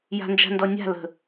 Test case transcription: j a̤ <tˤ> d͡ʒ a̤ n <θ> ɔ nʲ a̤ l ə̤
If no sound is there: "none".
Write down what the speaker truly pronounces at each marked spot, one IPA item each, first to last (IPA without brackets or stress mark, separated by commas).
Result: n, d